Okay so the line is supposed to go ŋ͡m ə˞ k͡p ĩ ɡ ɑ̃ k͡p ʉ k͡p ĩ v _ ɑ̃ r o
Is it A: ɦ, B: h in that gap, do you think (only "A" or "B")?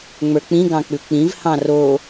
B